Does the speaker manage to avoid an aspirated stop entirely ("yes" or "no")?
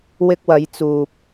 yes